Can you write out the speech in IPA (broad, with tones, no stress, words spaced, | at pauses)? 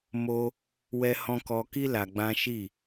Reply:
mo˦ | wɛ˦hɔ̃˦ kɔ˦ ki˦ la˧ɡ͡bã˦ ʃi˦˨